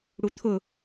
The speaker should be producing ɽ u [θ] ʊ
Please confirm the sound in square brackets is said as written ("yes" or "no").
no